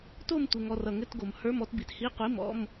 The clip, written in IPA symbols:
t o˥˧ m tʷ ɘ˨ ŋ ɔ˨ r ʌ˨ ŋ ɘ˧˥˧ t ɡ o˨ m h ə˞˧˥˧ m ɔ˥˧ t b i˨ t h i˧˥˧ qʷ i˧˥˧ m ɔ̰˧˥˧ m

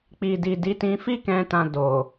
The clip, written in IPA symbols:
k͡p i˨ d i˨ d i˨˦ t ĩ˧ f i˦ k ɛ̃˧ t ã˧ d o˨

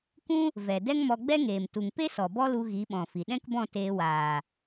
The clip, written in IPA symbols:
kʷ ũ˦ | v ɛ˨ d ɛ˦ ŋ m ɔ˧ ɡ͡b ɛ˦ ŋ eː˨ m t u˨ ŋ p e˦ s ɔ˨ b ɔ˦ l u˧ ɣ i˨˦ ɓ ɔ̃˨ f i˨ ɗ ɛ̃˦ k b ɔ̃˦˨ t eː˧ w aː˨

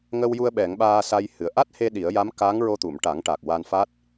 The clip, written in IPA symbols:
ŋ ə˧ w j u˧ ə̯ ɓ ɛ˨˩˦ ŋ ɓ aː˧ s a˧ j h ɨ˨˩ ə̯ ʔ a˦˥ t̚ h e˧ ɗ i˨˩˦ ə̯ j a˧˥ m k a˧˥ ŋ ɹ o˧ t̪ u˨˩˨ m ʈ a˨˩˦ ŋ ʈ a˨˩ k̚ w a˧ n f a˦˥ t̚

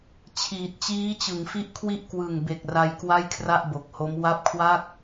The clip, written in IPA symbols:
t͡ɕʰ iː˨˩ t̚ t͡ɕ iː˦˥ t͡ɕ ɯ˩˦ ŋ f i˥˩ ʔ kʰ w i˥˩ ʔ k w ɯ˨˩ ŋ b e˨˩ k̚ r a˧ j k w a˥˩ j kʰ r a˥˩ ʔ b o˨˩ k̚ h o˦˥ m w a˦˥ p̚ kʰ w a˥˩ k̚

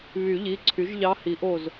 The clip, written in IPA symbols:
β y˨˩˦ ʎ i˩˧˩ ǀʰ y˩˥ ʒ ʎ ɑ˧˥ h i˩˥ ʔ o˧˩ z

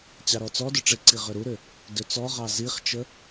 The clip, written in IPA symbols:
t͡ɕ ɑ ɾ ɔ t͡s ɔ d ʏ ʈ͡ʂ ɪ ǀ i ʁ ʏ ɾ u ɾ ʏ | d ʏ t͡s ɔ ʁ ɑ z i χ t͡ʃ ə

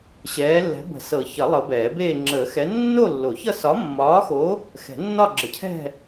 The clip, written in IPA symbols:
ɕ ɛː˨˦ lː ɛ̤˨˦ b ə̤˨˩˦ s ɤ˨˩˦ ç ʌ˨˩˦ lˠ ɤ˨˦ b ɛː˨˩˦ b eː˥˧ ŋ͡ǁ əː˨˩˦ x ɛ˨˦ nː o˥˧ lː o˨˩˦ ç ʌ˥˧ s ɒ˨˦ mː ɒː˨˦ x o˨˦ | x ɛ̤˨˩˦ nː ɒ˥˧ ɡ͡ǁ ə˨˦ cʰ ɛ̤˥˧

